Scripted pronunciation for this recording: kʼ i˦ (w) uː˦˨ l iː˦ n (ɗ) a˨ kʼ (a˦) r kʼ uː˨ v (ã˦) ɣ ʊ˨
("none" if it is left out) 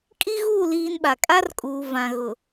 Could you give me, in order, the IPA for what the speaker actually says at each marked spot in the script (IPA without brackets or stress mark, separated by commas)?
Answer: ɣ, ɓ, a˦, ã˨